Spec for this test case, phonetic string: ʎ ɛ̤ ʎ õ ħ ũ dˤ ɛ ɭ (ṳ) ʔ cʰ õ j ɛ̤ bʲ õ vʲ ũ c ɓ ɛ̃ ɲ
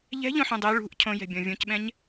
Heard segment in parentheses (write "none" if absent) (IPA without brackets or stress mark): ṳ